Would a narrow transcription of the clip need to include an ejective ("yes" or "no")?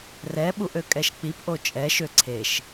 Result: yes